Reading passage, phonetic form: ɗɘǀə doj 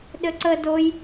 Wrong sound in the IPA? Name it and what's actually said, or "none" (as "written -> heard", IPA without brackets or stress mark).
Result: none